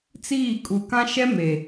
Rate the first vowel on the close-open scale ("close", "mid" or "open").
close